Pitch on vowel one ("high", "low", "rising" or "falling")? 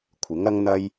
rising